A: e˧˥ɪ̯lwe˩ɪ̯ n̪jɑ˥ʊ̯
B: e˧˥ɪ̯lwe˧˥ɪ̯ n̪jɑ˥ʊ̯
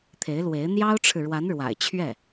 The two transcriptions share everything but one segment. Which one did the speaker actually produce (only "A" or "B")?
B